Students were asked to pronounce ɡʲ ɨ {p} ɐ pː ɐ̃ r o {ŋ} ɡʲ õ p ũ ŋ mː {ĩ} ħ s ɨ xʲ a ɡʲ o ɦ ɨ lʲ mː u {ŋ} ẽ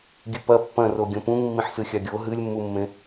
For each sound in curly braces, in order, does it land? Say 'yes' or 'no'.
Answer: yes, no, yes, no

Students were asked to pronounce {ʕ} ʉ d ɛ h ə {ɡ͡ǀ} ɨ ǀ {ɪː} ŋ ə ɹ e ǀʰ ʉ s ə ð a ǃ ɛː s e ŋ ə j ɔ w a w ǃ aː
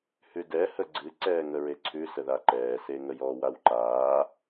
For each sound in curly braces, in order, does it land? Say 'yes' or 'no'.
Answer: no, yes, no

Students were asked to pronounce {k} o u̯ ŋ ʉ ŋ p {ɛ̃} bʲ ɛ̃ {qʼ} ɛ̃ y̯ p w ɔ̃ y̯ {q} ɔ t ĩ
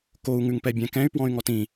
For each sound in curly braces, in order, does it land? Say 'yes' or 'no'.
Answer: yes, no, no, no

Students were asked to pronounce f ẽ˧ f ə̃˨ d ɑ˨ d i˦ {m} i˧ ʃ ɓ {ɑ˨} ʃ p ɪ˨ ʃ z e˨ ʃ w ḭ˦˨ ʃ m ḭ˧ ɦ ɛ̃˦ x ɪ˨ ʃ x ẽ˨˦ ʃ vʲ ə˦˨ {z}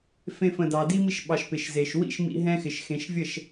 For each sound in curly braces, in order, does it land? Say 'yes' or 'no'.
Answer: yes, yes, no

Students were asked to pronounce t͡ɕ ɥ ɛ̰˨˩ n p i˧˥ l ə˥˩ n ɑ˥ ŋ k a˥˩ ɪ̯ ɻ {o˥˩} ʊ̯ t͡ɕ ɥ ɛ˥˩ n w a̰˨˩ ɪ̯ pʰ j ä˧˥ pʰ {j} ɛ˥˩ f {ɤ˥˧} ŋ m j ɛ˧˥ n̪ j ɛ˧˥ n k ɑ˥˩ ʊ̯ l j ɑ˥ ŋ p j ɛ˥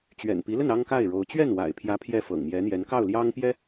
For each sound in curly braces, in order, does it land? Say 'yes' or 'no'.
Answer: no, yes, no

